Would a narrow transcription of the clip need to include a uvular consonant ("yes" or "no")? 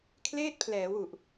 no